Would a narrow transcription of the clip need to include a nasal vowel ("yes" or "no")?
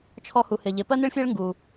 no